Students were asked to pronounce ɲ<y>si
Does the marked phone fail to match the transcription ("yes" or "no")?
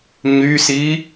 no